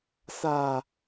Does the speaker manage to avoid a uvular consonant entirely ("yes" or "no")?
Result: yes